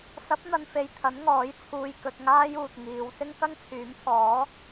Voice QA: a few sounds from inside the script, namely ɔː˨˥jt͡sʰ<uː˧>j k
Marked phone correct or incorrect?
correct